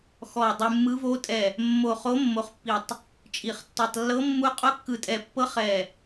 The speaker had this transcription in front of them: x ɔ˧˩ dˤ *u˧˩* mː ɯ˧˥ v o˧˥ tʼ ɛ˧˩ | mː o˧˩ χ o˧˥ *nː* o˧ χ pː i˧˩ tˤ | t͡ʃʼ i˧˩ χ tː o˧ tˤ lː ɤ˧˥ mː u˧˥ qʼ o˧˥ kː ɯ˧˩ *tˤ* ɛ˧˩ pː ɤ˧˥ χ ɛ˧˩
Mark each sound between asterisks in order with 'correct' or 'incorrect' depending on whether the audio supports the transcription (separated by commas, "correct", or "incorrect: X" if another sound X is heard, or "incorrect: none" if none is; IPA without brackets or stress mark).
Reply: incorrect: u˧, incorrect: mː, incorrect: tʼ